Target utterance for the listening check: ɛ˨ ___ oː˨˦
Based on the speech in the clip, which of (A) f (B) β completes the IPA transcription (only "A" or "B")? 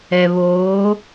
B